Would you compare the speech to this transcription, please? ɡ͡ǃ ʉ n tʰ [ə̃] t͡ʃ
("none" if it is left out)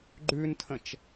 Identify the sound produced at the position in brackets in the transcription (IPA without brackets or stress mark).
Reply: ə̃